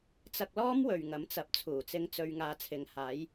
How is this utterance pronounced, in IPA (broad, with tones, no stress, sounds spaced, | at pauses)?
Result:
t͡s ɐ˧ k̚ l ɔː˥ m w ɵ˨ ɥ ŋ ɐ˨˥ m t͡s ɐ˨˥ p̚ t͡sʰ uː˨˩ t͡s ɪ˧ ŋ t͡s ɵ˧ ɥ ŋ aː˨˧ t͡sʰ ɪ˨ ŋ h aː˨˥ j